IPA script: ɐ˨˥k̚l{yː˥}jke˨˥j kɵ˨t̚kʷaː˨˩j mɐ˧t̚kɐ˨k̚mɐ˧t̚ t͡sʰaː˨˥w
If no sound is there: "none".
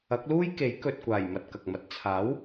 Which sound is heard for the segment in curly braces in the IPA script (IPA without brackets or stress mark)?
uː˥